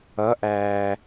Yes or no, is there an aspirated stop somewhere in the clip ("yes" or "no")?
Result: no